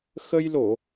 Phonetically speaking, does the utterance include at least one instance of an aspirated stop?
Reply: no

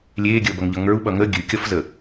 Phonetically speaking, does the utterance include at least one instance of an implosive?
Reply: yes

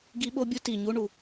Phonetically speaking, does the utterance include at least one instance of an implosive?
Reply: yes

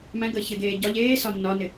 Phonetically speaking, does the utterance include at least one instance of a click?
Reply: no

